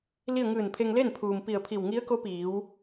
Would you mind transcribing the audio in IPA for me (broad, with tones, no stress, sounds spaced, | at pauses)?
l i˥˨ ə̯ ŋ ɯː˧˩ n pʰ e˧ ŋ l e˥˨ n pʰ uː˩ m p i˧˩ ə̯ pʰ i˧˩ w ŋ i˧˥ ə̯ k o˧˥ p iː˩˧ w